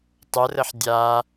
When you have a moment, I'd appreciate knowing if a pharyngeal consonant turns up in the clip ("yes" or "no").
yes